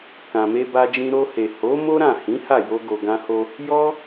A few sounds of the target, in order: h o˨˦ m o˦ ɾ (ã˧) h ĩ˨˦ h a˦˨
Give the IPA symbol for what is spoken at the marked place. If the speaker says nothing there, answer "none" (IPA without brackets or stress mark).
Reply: ã˦˨